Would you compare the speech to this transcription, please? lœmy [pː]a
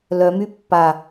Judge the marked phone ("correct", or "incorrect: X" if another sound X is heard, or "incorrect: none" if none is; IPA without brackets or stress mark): correct